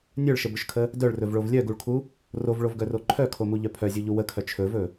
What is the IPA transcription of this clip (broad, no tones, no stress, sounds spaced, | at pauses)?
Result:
nʲ œ ɭ ʃ ə b ɵ ʃ kʰ ə | d œ ɭ r ɵ v ɭ o v lʲ œ ɡ u ɭ kʰ u | r o v ɭ o v ɡ œ r o ǃʰ œ kʰ o m u ʎ œ pʰ œ zʲ u ʎ u w ə kʰ œ t͡ʃʰ ɵ v ɵ